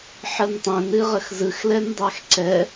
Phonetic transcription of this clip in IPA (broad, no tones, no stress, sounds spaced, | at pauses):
ħ ə n tˤ ɛ̃ n ɨ ʁ ə x z ɯ x l ɛ n dˤ æ x ǀ ɛ